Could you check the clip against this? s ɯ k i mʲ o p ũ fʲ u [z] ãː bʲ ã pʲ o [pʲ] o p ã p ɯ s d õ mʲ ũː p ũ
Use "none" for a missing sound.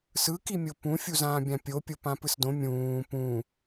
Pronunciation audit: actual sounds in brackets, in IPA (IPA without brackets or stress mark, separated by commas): z, pʲ